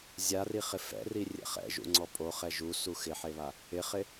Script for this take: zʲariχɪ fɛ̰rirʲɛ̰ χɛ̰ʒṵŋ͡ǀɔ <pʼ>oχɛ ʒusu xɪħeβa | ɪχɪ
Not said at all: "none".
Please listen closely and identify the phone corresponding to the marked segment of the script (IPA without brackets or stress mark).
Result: pʼ